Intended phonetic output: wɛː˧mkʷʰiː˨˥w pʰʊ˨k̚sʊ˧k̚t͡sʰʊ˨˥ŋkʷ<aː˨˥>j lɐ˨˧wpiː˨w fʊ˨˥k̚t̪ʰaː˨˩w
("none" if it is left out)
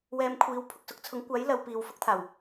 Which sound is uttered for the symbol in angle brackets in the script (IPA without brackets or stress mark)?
aː˨˥